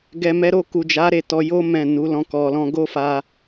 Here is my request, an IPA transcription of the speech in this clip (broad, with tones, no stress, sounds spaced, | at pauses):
ɡ ɛ˨ m ɛ˨˦ ɾ o˧ k u˨ d͡ʒ a˨˦ ɾ e˦˨ t ɔ˧ j o˦ m ɛ̃˦˨ n u˨˦ l ɔ̃˦ k ɔ˧ l ɔ̃˧ ɡ o˦ f a˧